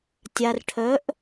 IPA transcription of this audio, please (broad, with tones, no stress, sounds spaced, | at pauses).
tʲ a˧ r ʈʰ œ˧˥ ʔ